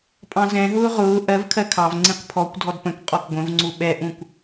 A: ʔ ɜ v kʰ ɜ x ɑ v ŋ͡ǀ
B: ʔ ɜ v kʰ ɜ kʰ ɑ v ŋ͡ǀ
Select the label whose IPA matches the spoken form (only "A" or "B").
B